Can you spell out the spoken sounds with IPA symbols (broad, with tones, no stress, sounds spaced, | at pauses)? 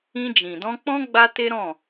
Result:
ĩ˧ d͡ʒ ĩ˨ d ɔ̃˧ k͡p ɔ̃˦ ɡ͡b a˦ t e˦ ɾ ɔ̃˦˨